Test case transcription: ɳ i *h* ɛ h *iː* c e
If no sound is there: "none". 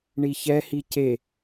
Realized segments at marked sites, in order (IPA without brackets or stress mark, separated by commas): ç, i